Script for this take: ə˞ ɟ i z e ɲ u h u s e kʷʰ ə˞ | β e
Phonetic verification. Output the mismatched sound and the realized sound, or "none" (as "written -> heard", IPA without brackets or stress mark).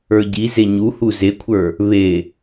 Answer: s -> z